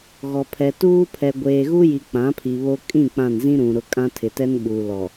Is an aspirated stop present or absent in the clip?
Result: present